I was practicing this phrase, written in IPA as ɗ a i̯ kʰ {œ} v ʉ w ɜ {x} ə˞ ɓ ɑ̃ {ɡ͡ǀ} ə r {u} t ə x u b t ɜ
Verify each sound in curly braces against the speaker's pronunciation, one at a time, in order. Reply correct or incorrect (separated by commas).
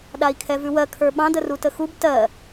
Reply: incorrect, incorrect, incorrect, correct